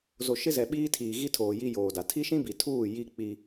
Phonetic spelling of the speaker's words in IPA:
zo˨ ʃɪ˦zɛ˨ ɓiː˦tʰiː˨ɣi˦tʰoː˨ ji˦joː˨da˨ tʰi˦ʃĩ˦bi˨tʰuː˦˨ ji˦k͡pi˦

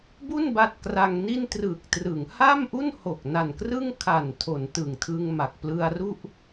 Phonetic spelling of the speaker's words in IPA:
bu˥˩n ba˦˥t̚kra˧ŋni˥˩n trɯ˨˩k̚trɯ˩˦ŋ ha˥˩mʔu˥˩nho˨˩k̚ na˨˩nkrɯ˥˩ŋkʰa˨˩n tʰo˩˦n tɯ˨˩ŋtʰɯ˧ŋma˨˩k̚ plɯ˧a̯ru˥˩ʔ

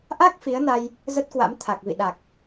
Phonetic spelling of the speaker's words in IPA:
ʔa˦˥k̚ fi˨˦ə̯na˧j | zə˦˥t̚kwa̰˧˥m t̪ʰa˨˩k̚vḭ˧˨ ɗa˨˩k̚

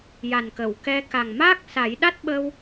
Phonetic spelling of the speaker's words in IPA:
ja˨˩nkə˨˩˨w kɛ˧ ka˨˩ŋmaː˦˥k̚sa˨˩˦j ɗa˦˥t̚ɓəː˧w

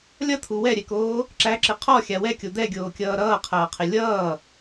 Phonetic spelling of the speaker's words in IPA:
lʲʌt̪ʰu wɛɾʲɛkoː | ǁæǁɪ qʰɔxʲa wɛkʲo d̪ɛɡʲoːkʲʌː ɾʌːqʰɐːqʰɪ lʲʌː

